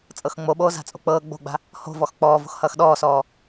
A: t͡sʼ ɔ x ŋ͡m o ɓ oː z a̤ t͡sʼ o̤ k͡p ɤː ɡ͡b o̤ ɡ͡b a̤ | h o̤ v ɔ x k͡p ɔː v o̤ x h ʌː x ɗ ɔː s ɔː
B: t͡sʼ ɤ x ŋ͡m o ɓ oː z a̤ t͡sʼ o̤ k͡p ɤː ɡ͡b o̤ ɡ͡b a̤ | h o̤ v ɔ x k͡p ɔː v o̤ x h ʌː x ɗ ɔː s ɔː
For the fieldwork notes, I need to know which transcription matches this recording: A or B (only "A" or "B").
B